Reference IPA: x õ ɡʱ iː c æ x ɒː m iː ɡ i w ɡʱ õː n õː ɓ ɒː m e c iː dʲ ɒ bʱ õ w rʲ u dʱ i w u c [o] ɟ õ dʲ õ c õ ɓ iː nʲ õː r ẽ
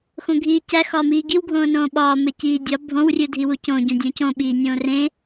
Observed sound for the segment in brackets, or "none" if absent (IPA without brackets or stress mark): õ